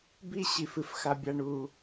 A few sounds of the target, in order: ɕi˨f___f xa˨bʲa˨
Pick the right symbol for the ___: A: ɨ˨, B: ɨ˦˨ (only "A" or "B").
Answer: A